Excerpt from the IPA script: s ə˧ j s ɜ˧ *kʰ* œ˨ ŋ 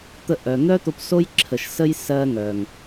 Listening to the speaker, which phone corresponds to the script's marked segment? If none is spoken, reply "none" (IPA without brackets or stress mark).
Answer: ŋ